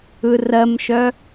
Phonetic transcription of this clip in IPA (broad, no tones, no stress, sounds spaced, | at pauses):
ɯ r ɜ m ʃ œ